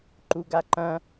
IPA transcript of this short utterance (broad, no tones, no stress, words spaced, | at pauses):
ǃuɡaǃɐ̃